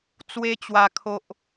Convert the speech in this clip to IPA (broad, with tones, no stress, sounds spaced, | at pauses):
t͡s w e˧ t͡ɕ w a˨˩ kʰ o˨ ʔ